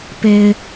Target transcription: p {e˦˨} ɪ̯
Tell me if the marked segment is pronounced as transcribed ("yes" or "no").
no